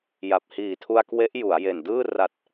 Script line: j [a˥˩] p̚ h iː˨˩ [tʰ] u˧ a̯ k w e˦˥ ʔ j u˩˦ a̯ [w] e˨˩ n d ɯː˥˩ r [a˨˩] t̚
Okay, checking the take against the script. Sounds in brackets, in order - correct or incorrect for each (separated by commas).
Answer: incorrect, correct, incorrect, correct